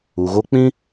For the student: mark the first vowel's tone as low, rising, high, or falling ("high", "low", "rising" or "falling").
low